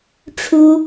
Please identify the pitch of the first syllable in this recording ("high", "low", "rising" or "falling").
high